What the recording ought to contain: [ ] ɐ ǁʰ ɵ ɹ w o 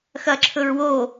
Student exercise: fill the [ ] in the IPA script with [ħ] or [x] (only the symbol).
x